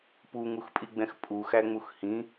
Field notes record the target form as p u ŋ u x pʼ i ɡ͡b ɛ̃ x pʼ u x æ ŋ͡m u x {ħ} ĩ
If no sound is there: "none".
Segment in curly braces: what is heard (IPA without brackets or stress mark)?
h